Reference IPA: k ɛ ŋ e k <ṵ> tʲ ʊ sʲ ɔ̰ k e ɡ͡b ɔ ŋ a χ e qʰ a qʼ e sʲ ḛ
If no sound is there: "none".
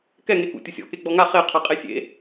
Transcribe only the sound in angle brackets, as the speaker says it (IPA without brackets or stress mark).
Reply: ṵ